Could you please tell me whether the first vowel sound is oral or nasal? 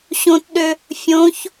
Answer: nasal